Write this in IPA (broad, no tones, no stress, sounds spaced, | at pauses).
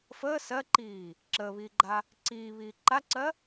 f əː s ɜ ǃ iː | ǁ əː β iː ɡ͡ǃ a | ǀ iː β iː ǃ a ǀ ɜ